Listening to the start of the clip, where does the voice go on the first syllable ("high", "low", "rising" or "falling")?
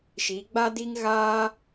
rising